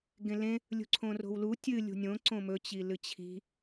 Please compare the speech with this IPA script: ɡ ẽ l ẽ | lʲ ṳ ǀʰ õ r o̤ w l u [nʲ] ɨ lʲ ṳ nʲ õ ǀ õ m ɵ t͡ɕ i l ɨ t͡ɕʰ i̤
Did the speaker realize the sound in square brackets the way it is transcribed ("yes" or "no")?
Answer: no